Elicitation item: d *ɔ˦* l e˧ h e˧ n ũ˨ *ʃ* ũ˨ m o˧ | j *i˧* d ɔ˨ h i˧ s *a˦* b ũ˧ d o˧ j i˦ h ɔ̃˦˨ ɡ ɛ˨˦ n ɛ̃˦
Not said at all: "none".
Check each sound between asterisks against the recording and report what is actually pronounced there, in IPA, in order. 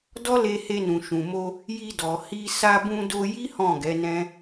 ɔ˦, ʃ, i˧, a˧

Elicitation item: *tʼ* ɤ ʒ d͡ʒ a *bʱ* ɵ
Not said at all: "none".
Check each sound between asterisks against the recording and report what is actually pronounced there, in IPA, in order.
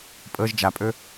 pʼ, pʼ

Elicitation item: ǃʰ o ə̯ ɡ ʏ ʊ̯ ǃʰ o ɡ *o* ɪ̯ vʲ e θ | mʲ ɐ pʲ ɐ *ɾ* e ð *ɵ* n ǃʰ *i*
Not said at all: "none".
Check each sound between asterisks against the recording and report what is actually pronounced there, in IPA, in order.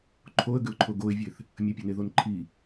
o, n, o, i

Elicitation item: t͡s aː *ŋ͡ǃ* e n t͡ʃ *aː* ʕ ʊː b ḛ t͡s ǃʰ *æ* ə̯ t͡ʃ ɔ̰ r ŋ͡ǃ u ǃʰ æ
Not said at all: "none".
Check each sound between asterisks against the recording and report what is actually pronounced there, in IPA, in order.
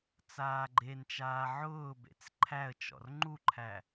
ɡ͡ǃ, aː, æ

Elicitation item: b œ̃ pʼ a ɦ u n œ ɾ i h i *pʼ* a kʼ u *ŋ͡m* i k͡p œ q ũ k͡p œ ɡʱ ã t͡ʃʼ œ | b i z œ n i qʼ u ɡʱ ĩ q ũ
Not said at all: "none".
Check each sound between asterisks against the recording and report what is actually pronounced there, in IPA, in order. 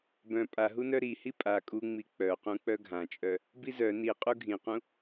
pʼ, ŋ͡m

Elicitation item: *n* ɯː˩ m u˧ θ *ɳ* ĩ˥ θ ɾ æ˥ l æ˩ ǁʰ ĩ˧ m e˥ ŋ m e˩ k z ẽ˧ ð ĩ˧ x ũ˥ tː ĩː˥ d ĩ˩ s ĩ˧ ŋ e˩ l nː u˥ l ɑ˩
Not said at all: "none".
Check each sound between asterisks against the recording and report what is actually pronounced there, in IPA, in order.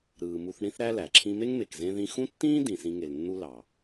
ɾ, ɳ

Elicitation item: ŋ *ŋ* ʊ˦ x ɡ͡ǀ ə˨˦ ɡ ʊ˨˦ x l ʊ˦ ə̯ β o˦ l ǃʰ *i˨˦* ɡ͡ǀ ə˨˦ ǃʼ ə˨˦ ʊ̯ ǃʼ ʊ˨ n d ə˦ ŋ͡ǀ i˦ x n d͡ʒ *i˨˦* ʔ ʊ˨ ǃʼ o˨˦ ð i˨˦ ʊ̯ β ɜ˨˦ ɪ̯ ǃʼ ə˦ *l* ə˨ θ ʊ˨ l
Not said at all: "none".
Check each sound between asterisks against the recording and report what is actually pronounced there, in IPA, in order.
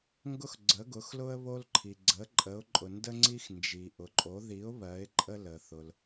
ɡ, i˨, i˨, l

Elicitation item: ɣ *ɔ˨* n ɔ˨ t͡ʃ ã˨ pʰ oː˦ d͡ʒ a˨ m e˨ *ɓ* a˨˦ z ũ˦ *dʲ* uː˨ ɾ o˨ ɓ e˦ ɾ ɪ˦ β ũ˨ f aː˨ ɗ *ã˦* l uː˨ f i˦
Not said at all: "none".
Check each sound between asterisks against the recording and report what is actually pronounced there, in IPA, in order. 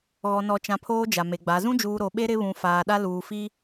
ɔ˨, ɡ͡b, d͡ʒ, a˦

